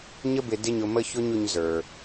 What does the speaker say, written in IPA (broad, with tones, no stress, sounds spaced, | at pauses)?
ɲ ə˧ b ɪ˨ d ɪ˦ ɲ ʊ˧ m ə˦ ç ʊ˦ ɲ ʊ˧ ɲ z ə˞˨